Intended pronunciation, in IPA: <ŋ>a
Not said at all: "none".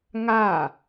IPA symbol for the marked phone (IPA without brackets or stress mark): ŋ